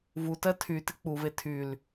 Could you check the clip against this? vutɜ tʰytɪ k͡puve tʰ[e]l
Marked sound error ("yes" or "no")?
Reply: yes